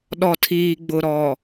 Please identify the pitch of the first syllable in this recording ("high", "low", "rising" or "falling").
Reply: low